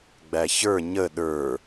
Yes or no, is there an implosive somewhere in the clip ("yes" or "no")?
yes